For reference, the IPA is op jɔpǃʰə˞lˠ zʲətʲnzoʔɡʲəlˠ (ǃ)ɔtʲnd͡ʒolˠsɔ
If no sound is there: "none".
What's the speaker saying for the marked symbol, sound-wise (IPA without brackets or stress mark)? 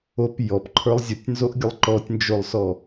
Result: ǃ